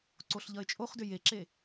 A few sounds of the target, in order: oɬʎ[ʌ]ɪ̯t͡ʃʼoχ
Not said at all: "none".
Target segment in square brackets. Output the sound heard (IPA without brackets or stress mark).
ʌ